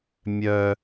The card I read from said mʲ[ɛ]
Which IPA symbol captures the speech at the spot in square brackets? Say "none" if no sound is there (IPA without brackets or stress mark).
œ